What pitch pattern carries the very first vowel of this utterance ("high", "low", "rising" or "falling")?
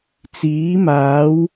rising